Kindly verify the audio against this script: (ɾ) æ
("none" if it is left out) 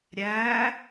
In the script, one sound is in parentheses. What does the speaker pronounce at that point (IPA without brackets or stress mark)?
ɾʲ